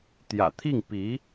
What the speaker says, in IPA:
t̪ j ä̰˨˩ t̪ʰ i˥˩ ŋ p i˧˥

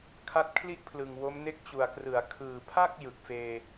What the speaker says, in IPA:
kʰ a˦˥ t̚ kʰ l i˥˩ ʔ pʰ l ɯ˨˩ ŋ w o˦˥ m n e˥˩ k̚ t͡ɕ u˨˩ a̯ k r ɯ˩˦ a̯ kʰ ɯː˨˩ pʰ a˥˩ k̚ j ɯ˨˩ k̚ f eː˧

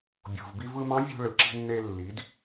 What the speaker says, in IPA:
bʲ o̤˩ v b i˧ v ɯ˧ m ɑ̃˧˥ vʲ ṳ˧ ɭ ɯ˩˧ ǁ i̤˧ nː e˧ lː i˩˧ d

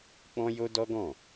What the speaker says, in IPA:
k͡p ɔ̃˦ j o˦ d ɔ˦ ɡ ɔ̃˦˨

